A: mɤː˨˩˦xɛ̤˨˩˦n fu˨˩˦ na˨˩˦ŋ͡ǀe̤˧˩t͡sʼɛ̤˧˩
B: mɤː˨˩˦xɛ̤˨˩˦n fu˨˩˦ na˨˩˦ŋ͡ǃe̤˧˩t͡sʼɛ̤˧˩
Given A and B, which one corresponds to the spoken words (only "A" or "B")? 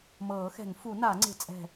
A